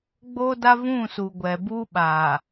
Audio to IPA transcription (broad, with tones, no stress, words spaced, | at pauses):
ɡ͡boː˦da˦vũ˦˨ suː˨ɡʷɛ˨buː˦ɓaː˨